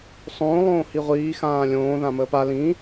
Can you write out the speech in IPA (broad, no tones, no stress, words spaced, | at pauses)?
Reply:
sˤõː lˠõːhiʁʷiː xãːlʲõː ðãməːpa lĩ